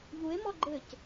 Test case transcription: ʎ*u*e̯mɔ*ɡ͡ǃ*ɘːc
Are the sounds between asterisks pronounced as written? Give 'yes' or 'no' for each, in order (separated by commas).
yes, yes